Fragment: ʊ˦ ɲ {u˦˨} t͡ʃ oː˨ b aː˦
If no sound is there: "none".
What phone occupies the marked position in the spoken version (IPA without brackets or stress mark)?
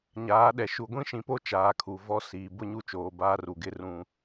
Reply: u˦˨